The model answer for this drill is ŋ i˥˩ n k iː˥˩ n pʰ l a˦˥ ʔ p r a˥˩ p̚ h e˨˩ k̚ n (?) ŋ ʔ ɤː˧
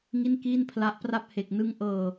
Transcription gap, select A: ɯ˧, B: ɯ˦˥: B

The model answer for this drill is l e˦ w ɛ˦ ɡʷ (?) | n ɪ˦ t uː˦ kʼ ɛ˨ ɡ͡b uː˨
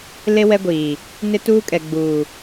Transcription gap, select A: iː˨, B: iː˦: A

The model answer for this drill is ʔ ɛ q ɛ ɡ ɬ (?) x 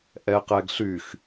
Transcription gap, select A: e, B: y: B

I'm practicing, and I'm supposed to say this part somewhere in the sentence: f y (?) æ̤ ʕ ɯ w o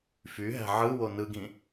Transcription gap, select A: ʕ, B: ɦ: B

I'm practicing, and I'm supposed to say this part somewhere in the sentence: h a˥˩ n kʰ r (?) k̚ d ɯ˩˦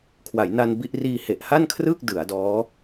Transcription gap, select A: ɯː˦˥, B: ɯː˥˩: B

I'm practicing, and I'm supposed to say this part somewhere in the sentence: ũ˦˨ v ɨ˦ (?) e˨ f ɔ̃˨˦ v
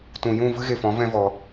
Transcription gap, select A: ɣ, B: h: A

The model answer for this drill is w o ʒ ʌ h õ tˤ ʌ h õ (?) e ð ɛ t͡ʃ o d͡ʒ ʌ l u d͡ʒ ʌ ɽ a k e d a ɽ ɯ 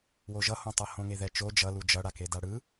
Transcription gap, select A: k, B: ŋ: B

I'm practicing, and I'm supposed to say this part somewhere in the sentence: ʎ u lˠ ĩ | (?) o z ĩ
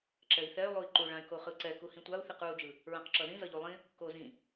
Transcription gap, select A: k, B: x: A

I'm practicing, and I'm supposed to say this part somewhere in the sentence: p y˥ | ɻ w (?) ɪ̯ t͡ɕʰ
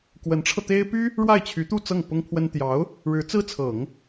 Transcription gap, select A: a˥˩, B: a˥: A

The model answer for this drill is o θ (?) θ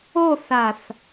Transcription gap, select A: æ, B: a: B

